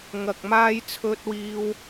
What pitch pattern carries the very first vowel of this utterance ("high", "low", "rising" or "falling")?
low